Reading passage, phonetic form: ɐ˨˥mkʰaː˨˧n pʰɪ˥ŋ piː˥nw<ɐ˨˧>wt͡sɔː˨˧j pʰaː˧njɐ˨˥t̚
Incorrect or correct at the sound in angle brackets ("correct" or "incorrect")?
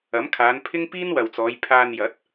incorrect